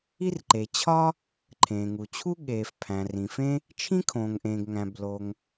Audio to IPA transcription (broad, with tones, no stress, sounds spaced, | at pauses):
i˥ r ǃ e˩ t͡ɕʰ ɒ˥ | ǃʰ ẽː˩ ŋ u˩ t͡ɕʰ u˥ ɠ eː˩ f pʰ æ̃˩ r ĩ˩ f ẽ˥ | t͡ʃʰ ĩ˥ kʰ õː˩ ŋ ʔ ẽː˩ ɡ ŋ æ̃˩ b l o˩ ŋ